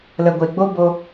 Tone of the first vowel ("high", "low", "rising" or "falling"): low